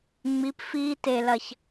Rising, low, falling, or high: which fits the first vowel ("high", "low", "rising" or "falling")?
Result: rising